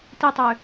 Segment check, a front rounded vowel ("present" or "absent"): present